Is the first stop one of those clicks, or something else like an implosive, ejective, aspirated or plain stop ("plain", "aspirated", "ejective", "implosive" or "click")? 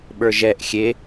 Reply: implosive